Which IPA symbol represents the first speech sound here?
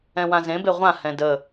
ɛ̃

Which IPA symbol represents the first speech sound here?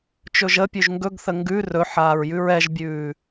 t͡ʃ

